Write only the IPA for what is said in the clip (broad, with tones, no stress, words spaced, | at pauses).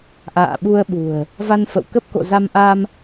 ʔa̰ː˧˨ɓu˧ə̯ɓṳ˨˩ə̯ | va˧nfə̰˧˨w kə˦˥p̚ko̰˧˨za˧m ʔa˧m